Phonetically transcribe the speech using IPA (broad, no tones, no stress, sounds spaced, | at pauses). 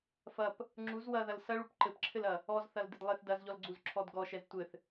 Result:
f ɐ p | ŋ͡ǁ u z w ɐ ð ɐ l s ɐ ɭ u p ǃ ɘ p ǁʰ ɘ l ɐ | ɔ z θ ɐ l d ɘ d lˠ e θ d ɐ z ʎ ɔ l ɡ͡ǀ u z ǁʰ ɔ d ɡ ɔ ʃ ɛ z tʷ ɘ θ